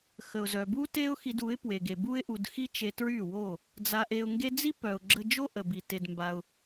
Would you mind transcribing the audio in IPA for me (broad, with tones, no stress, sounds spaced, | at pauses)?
x ə˨ ʊ̯ z œ˨ b u˦ t e˦ ʊ̯ x i˧ d u˨˦ ɪ̯ p w e˨ ɡ e˨ b u˧ ɪ̯ ʔ u˨ d x i˦ t͡ʃ e˧ t ɹ y˦˨ w o˦˨ | d͡z a˧ ʔ e˧ ʊ̯ ŋ ɡ e˦ d͡z i˦ p œ˨ ʊ̯ ɡ͡ǁ ə˧ d͡ʒ o˦ ʔ ə˨ b i˨ t e˧ d m b a˧ ʊ̯